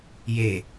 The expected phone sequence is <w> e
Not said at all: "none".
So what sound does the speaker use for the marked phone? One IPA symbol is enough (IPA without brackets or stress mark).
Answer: j